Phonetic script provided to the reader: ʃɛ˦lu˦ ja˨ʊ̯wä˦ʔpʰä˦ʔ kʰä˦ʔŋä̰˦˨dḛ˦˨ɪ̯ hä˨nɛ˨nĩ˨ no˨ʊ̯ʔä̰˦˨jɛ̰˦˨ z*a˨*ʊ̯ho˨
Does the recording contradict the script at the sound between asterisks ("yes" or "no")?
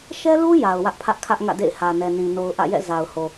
no